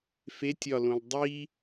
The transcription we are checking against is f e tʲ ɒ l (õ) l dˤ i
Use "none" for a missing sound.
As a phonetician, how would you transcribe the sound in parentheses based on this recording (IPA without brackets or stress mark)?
õ